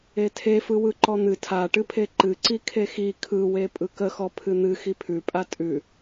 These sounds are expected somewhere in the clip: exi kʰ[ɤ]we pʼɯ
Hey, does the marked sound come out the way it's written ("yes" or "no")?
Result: no